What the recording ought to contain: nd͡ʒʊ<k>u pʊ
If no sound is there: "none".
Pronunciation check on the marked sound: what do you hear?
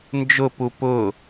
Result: p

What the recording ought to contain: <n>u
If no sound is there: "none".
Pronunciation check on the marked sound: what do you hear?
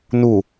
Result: n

